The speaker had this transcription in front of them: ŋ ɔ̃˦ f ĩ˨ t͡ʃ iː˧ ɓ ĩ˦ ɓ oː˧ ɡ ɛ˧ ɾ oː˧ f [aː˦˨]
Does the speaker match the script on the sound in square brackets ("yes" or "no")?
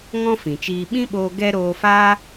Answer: no